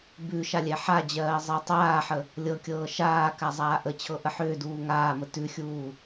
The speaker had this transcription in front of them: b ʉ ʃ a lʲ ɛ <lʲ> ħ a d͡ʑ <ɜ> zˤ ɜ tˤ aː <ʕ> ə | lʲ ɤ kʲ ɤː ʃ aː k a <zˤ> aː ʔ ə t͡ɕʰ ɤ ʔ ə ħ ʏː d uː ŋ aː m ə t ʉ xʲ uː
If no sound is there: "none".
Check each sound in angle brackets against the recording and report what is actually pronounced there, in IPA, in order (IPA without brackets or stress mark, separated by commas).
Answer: none, ɜː, ħ, zˤ